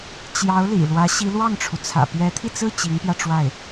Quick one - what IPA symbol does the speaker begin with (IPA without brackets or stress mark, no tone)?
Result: t͡ɕ